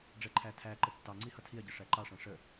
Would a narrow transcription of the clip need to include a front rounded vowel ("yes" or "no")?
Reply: no